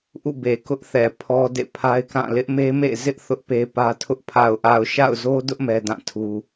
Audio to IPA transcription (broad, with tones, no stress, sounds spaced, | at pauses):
ʔ ṵ˦˨ b e˨ k ʊ˦ ʔ θ ɛ˨ pʰ ɔ˦ d ḛ˦˨ pʰ a˦ ɪ̯ k ã˦˨ l ɪ˦ ʔ m e˦ m ḛ˦˨ z ɪ˦ ʔ θ ʊ˦ ʔ p e˦ p ä˦ tʰ ʊ˦ ʔ pʰ a˨ ʊ̯ ʔ a˨ ʊ̯ ʃ a̰˦˨ ʊ̯ z o˦ d ʊ˦ ʔ m ɛ˦ d ã˦˨ tʰ u˦